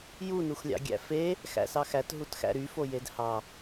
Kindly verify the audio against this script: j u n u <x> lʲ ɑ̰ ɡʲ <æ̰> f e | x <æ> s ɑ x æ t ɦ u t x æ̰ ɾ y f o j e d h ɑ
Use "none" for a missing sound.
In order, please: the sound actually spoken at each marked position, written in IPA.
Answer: x, æ̰, æ̰

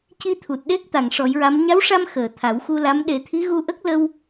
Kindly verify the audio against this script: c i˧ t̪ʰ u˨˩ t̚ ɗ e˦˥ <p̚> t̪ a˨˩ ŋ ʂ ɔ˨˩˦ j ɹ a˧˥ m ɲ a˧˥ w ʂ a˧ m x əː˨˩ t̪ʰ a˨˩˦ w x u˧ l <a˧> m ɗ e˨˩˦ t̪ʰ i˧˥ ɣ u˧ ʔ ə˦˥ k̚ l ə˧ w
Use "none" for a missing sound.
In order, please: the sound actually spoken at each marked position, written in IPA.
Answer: k̚, a˧˥

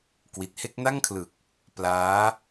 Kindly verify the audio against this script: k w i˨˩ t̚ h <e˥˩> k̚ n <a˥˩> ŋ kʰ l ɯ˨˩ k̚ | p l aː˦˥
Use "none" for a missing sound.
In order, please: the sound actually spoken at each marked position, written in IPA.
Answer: e˥˩, a˥˩

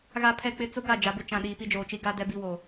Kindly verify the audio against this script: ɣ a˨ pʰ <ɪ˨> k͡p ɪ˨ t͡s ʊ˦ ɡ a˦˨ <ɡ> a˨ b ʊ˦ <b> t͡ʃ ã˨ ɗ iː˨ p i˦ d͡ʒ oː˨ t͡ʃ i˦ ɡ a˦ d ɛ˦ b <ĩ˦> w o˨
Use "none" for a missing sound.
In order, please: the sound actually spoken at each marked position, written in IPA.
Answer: ɛ˨, d͡ʒ, none, i˦

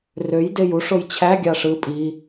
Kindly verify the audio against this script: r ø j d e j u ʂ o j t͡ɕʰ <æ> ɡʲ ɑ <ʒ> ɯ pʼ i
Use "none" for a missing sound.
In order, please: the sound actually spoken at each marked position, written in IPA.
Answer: æ, ʂ

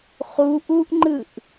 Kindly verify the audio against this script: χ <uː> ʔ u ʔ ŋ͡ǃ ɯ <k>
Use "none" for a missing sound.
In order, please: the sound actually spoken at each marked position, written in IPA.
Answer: u, ʔ

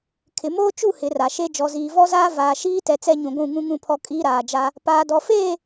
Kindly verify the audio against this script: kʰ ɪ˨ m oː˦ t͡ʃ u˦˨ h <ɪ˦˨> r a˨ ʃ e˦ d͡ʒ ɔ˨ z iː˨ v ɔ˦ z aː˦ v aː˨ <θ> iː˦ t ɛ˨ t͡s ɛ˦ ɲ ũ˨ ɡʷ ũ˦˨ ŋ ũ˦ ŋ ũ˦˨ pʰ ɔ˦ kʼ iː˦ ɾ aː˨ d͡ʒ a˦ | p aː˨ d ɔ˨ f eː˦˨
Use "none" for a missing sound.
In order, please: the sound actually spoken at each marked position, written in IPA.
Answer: ɪ˨˦, ʃ

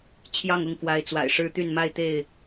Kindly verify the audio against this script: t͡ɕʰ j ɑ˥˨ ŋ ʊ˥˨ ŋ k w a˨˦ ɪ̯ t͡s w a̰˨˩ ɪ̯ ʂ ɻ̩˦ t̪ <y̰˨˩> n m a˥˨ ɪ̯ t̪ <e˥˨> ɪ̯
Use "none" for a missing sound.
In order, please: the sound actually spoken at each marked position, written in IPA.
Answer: y˥˨, e˥˨

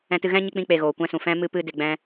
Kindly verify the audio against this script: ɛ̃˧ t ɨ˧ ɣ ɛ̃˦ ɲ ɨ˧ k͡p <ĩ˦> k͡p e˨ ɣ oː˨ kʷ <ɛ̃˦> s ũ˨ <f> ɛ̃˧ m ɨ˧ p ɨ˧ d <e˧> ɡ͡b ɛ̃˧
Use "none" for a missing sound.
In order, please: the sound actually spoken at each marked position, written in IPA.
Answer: ĩ˧, ɛ̃˦, f, e˨

